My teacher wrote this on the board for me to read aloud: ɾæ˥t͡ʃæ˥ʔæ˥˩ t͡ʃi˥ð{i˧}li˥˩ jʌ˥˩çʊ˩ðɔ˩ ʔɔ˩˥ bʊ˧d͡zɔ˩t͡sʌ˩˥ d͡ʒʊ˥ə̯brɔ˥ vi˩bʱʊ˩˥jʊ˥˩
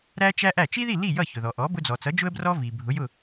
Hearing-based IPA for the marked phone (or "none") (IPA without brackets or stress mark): i˥˩